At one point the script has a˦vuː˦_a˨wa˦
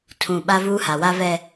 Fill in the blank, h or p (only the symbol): h